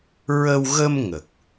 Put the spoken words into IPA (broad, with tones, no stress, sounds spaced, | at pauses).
ɹ ə˧ w ɣ ə˧ m ŋ ə˨˩ k̚